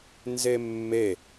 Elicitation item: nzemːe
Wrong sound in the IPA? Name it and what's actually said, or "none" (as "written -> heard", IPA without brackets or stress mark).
none